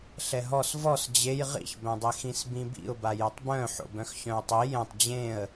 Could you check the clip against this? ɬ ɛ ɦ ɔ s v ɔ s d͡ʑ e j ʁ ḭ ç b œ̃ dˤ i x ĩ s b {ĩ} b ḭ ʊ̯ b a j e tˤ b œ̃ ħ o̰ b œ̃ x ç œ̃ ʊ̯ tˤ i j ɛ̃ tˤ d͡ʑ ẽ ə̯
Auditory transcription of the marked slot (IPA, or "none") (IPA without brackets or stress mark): ĩ